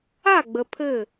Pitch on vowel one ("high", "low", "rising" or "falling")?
falling